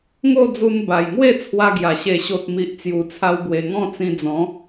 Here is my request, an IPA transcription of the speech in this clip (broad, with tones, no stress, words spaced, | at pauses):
ŋo˥˧d͡zu˧n ba˨˩jŋwe˥˧ t͡sʰwa˦ɡja˨˩ ɕe˨˩ɕo˨t̚mi˨ʔ t͡sju˨˩t͡sʰa˧wbwe˨˩ŋɔ̃˥˧ t͡sĩ˧d͡zɔ̃˨˦